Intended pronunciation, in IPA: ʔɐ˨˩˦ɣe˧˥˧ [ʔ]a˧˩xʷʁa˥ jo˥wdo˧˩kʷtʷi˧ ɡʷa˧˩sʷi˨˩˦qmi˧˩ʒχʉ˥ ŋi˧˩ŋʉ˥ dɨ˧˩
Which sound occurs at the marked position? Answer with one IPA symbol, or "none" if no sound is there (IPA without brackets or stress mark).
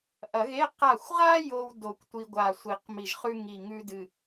q